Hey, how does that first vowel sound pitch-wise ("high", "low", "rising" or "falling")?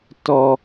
low